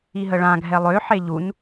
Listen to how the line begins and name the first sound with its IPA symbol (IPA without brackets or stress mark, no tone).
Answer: i